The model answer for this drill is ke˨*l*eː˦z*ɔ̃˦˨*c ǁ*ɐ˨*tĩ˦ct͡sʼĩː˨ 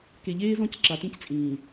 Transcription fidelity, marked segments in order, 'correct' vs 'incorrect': incorrect, correct, incorrect

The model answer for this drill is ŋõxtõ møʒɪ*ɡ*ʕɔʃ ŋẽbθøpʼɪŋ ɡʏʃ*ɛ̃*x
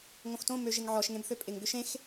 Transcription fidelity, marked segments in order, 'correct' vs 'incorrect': incorrect, incorrect

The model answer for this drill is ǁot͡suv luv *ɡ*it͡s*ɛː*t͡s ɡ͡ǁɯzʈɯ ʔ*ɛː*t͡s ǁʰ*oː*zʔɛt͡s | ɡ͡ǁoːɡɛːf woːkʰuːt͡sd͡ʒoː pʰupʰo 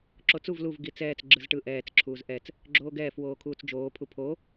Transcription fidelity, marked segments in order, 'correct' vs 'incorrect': correct, correct, correct, incorrect

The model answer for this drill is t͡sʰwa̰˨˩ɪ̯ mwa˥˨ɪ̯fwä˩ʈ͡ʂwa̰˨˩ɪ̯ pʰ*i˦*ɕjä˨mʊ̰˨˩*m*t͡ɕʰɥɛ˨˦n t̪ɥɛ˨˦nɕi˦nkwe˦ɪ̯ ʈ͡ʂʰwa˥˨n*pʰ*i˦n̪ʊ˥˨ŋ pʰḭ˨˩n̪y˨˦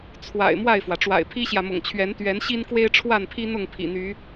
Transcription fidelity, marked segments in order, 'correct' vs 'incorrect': correct, incorrect, correct

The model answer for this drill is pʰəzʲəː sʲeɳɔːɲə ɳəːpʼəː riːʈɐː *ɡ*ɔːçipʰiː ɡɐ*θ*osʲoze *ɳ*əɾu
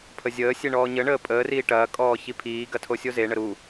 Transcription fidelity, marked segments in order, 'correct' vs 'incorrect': incorrect, incorrect, correct

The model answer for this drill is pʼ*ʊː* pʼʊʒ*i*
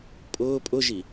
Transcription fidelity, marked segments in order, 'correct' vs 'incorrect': correct, correct

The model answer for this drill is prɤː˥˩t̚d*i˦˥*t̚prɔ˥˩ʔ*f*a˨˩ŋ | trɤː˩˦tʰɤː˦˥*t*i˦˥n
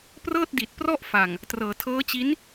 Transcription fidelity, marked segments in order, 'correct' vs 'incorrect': incorrect, correct, incorrect

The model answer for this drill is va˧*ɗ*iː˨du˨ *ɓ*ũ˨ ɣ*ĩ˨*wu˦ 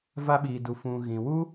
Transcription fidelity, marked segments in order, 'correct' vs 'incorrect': incorrect, incorrect, correct

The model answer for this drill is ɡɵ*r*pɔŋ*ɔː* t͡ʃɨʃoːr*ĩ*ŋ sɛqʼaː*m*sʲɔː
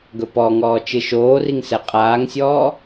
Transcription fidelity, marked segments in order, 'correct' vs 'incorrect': incorrect, correct, incorrect, incorrect

